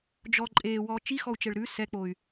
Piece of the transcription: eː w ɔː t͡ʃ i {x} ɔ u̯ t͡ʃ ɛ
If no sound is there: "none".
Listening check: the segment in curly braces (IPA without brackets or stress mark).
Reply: x